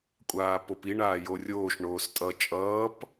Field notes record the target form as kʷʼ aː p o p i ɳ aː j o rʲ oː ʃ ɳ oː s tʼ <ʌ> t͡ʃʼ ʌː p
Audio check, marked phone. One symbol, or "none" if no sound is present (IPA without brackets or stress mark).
ʌ